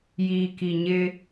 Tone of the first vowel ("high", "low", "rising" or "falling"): low